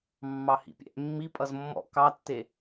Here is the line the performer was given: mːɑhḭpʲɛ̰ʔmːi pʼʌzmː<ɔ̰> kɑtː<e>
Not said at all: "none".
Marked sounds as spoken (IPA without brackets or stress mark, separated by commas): ɔ̰, e